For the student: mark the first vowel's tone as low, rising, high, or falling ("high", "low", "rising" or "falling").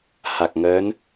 low